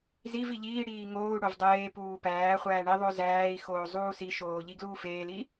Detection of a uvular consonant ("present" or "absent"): present